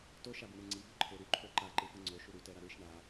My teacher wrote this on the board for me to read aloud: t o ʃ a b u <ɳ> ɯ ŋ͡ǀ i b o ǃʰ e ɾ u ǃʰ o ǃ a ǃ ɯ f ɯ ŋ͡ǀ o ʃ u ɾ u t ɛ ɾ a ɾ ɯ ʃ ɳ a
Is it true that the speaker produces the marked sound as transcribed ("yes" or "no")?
yes